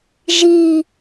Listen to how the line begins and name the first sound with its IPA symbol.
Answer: ʒ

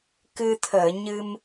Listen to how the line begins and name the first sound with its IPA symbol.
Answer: k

